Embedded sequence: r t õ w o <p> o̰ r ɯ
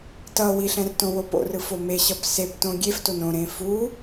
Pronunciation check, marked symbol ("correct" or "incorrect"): correct